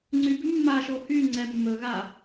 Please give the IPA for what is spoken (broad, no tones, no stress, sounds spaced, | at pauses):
ŋ͡ǀ y b ʉ mː a ʃ o h y ŋ͡ǀ ɛ mː ɵ ɣ a